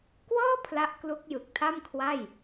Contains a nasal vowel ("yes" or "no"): no